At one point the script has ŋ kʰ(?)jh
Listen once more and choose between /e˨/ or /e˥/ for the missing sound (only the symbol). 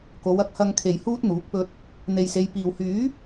e˨